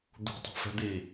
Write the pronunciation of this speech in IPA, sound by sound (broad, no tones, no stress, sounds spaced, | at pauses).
d̪ ṳ tˤ ɛ̤ f ɛ̤ d̪ i